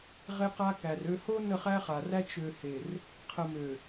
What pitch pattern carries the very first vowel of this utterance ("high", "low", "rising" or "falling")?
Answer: high